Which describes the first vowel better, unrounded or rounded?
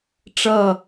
unrounded